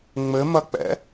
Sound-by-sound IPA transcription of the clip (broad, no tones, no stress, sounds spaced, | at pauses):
ŋ͡m ɘ m ɐ k͡p ɛ̰